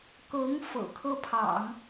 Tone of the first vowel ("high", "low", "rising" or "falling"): rising